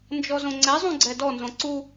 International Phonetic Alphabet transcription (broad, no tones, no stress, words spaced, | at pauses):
nd͡ʒɔzõŋ͡ǀɛzˤũ ɡ͡ǀɛdɔnzõ ǀu